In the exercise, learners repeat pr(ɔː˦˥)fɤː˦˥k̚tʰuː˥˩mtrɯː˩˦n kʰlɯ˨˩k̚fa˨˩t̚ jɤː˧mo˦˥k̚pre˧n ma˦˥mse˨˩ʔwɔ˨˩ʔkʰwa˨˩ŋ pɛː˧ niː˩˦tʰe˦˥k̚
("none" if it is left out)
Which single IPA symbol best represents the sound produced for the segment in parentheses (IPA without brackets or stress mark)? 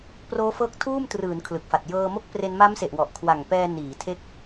oː˦˥